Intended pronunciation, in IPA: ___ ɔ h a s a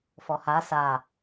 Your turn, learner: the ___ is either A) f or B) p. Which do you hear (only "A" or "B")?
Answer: A